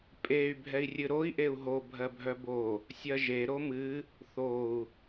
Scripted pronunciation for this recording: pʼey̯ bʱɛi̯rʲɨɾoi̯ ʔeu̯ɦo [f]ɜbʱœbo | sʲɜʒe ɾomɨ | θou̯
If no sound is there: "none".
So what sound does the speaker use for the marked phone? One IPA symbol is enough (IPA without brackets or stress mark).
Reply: bʱ